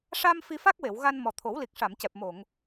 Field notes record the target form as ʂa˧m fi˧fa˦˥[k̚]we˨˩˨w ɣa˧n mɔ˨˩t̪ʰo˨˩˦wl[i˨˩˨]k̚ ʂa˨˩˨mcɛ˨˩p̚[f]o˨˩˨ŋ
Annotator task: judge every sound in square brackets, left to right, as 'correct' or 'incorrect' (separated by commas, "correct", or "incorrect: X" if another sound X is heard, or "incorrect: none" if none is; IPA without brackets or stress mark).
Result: correct, incorrect: i˨˩, incorrect: m